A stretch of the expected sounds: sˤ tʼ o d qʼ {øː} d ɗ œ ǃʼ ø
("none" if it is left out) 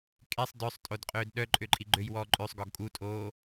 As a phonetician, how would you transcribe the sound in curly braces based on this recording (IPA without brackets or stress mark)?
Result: øː